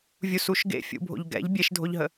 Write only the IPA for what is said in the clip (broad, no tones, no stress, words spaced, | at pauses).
vʲusuʃ ɡḛfʲṵbʱo̰ʎ ɡɛ̰ʎ bʲeʃdʱoʎɦə